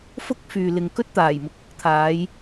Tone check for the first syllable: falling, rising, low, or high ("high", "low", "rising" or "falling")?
high